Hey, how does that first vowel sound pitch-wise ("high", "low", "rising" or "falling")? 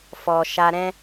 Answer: low